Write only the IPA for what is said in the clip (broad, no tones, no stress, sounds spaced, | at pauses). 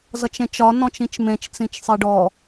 z ʌ t͡ʃ ẽ t͡ʃ ɒ n ɔ̃ t͡ʃ ĩ t͡ʃ m ẽ t͡ʃ t͡s ĩ t͡ʃ sˤ i ɖ ɔ